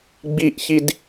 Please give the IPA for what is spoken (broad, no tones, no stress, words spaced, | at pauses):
ɡ͡biʔçid